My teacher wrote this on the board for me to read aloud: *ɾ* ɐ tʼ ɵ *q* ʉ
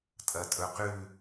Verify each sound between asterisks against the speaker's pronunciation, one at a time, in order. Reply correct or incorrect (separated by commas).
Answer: incorrect, correct